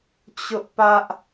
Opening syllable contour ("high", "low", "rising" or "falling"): high